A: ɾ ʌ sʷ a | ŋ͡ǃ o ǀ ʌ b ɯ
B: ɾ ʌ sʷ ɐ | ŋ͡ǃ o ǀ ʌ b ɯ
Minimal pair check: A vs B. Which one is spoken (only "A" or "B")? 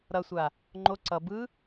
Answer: A